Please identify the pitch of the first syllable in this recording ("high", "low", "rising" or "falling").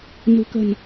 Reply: low